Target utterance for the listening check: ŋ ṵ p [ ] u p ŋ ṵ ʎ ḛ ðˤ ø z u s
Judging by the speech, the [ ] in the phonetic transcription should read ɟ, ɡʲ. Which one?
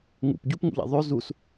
ɟ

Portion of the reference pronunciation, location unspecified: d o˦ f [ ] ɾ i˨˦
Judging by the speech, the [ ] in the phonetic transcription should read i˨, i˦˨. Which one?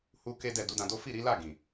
i˦˨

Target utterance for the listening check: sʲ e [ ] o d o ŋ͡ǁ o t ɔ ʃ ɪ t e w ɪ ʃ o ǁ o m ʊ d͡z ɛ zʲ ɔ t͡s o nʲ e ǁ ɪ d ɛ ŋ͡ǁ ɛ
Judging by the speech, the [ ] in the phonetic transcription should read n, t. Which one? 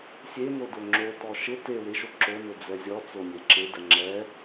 n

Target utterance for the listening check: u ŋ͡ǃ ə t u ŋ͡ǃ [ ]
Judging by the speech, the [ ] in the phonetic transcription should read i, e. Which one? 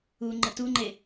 e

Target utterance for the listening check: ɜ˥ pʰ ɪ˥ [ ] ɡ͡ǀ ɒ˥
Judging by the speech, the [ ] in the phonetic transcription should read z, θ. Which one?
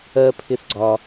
θ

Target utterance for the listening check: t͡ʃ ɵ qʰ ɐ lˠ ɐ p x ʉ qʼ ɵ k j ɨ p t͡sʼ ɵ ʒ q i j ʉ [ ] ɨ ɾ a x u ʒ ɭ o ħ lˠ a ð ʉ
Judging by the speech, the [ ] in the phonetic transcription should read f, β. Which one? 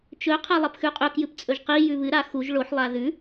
β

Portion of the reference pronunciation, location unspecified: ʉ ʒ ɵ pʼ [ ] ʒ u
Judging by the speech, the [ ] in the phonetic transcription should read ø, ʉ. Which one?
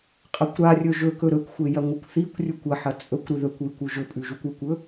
ʉ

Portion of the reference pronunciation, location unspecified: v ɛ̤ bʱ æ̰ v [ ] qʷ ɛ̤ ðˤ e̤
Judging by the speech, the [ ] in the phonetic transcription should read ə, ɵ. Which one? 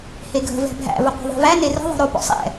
ə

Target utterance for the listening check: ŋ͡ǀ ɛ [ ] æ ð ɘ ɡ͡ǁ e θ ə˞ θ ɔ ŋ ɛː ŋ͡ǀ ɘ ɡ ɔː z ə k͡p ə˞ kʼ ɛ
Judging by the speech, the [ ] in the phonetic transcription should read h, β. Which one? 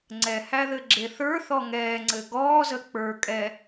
h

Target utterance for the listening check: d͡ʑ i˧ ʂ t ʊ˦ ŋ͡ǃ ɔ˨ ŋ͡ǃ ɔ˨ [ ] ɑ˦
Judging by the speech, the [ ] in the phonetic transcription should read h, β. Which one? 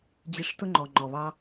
β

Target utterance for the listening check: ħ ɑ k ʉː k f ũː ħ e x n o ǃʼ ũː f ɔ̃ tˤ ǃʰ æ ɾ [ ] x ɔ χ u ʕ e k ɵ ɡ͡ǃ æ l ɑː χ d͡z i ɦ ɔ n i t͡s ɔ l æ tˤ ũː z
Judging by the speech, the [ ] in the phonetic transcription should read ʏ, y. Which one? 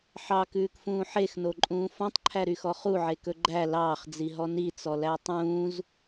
y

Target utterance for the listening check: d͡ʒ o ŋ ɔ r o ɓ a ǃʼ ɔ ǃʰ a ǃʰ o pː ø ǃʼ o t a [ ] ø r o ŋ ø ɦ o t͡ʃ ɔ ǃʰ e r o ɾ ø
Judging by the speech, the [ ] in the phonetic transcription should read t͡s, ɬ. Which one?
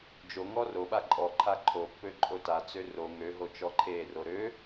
t͡s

